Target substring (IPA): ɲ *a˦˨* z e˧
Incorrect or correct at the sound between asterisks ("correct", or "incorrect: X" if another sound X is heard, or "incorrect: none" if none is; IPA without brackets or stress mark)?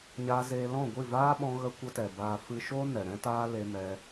incorrect: a˧